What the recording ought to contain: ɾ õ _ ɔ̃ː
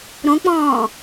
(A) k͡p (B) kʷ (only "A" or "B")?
A